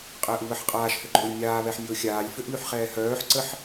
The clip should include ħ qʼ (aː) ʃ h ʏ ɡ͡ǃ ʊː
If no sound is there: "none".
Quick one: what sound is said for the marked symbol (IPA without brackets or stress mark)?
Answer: aː